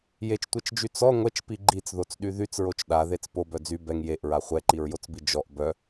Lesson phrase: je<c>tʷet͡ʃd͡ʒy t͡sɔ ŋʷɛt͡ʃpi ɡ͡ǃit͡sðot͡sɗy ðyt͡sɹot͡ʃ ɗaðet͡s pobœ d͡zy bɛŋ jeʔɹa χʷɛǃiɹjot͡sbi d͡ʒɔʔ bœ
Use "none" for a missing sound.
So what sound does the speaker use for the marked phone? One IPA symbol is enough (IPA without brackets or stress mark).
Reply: t͡ʃ